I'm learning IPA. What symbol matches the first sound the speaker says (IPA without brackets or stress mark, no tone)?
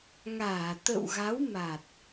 ŋ